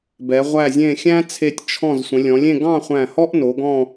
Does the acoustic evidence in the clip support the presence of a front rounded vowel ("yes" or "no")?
no